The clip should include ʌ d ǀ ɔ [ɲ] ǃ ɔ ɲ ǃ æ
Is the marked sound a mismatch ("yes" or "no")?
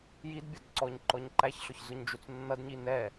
no